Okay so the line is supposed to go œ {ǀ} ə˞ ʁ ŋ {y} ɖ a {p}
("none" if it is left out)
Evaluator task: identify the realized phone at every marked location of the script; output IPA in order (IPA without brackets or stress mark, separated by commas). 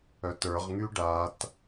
t, y, t